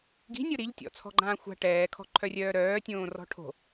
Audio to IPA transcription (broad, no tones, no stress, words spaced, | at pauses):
ɡi̤nʲo ɾiʎtʲɔ̰t͡sʰɔ̤ɡ͡ǃãː xʷa̤ ʈɛːkʰɔ̤ǃʰœrʲœː ɾœːtʲõːrɔ̤ ʈʰo̤